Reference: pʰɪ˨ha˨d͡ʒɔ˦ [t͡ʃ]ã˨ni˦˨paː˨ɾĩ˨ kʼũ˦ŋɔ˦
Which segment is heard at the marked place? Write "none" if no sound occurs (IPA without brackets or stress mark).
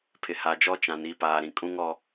t͡ʃ